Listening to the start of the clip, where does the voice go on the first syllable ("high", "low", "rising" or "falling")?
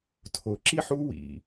low